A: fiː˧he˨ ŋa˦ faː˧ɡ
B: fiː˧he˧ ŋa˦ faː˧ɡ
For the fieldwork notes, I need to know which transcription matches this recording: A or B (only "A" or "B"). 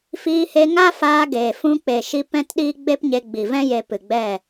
B